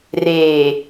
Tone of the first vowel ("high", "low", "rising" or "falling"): low